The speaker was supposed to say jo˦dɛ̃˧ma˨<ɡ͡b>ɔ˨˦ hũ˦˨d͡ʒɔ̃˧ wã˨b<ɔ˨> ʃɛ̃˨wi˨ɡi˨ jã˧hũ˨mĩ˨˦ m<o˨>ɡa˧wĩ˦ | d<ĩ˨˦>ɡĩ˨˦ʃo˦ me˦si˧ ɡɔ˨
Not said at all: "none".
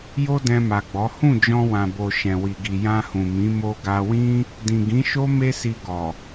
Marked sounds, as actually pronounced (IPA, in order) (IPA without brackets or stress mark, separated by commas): ɡ͡b, o˨, o˧, ĩ˨